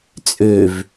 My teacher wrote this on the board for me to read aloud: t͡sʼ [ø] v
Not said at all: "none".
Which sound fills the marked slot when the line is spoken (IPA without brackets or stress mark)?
ø